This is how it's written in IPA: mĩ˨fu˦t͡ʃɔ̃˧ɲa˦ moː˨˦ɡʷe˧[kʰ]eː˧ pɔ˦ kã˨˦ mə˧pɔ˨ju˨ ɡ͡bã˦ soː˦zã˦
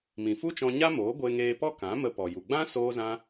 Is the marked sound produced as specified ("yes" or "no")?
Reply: no